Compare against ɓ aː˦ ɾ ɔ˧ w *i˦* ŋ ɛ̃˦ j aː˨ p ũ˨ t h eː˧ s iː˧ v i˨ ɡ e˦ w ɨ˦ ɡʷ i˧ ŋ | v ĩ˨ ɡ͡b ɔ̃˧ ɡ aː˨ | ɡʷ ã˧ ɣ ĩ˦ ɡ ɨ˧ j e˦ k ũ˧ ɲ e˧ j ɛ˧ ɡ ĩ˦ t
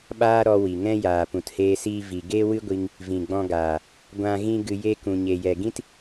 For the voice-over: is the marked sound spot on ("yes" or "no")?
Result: no